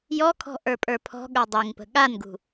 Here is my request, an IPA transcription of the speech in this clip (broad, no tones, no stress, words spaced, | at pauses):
jɔkʰɔ̤ ʔə˞pʼə˞pʰɔ̤ɠə˞ dˤeŋpə̤ ɠanɡṳ